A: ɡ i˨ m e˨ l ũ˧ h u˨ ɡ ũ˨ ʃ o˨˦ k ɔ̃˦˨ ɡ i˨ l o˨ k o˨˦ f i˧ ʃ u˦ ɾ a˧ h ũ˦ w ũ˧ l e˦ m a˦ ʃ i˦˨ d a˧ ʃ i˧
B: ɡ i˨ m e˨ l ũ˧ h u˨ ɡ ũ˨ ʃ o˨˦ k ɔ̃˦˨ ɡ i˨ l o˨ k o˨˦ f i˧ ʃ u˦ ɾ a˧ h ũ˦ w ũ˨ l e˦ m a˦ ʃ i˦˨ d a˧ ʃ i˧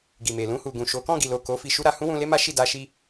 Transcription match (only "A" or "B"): A